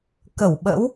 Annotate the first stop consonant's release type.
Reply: plain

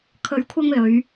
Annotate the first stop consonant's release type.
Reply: aspirated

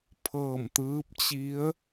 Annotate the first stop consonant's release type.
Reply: aspirated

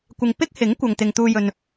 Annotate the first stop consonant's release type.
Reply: plain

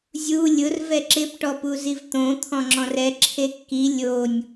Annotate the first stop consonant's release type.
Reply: click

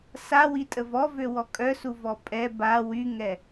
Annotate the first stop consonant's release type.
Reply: ejective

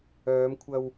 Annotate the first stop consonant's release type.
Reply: aspirated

